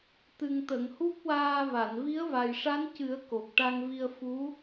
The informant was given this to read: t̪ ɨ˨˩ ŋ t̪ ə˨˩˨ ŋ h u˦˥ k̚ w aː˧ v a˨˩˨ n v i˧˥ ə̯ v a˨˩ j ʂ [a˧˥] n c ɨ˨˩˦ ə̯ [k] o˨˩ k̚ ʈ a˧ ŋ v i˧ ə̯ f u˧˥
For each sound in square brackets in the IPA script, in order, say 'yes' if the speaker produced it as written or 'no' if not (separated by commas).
yes, yes